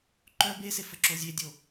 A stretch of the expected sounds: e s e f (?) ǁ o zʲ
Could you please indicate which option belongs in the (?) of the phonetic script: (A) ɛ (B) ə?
B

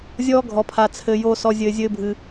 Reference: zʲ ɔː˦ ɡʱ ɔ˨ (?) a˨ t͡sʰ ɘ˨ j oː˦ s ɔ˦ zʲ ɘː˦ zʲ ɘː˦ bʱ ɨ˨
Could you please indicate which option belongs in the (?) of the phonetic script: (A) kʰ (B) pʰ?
B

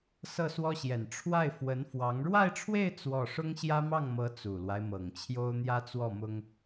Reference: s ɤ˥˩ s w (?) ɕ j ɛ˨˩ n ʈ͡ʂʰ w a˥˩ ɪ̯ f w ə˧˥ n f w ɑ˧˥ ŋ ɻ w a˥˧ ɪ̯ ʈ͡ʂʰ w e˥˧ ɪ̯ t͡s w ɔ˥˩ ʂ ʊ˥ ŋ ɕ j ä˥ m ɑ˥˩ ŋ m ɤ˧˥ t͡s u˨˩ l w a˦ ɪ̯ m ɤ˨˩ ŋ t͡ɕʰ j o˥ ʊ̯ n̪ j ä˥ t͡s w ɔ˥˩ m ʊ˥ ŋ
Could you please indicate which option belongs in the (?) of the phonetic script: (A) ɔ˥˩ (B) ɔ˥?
B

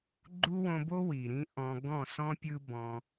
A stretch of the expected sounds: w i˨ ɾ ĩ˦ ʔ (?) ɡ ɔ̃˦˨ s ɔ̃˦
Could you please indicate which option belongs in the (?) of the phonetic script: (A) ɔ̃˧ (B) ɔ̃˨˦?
A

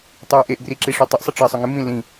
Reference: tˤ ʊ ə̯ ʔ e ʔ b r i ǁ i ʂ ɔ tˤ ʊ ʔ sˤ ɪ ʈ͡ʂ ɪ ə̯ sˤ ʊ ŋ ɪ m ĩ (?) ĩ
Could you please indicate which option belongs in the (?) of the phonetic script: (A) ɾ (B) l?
B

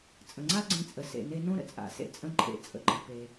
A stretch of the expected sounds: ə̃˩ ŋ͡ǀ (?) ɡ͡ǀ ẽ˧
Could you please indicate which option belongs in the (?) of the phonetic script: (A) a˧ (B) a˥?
B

